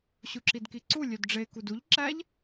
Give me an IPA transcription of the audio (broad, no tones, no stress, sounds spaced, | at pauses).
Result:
ɕ u ǁ i d k i ǀ u lʲ ø d ɖ͡ʐ e k u d u ʎ ǁ æ ʎ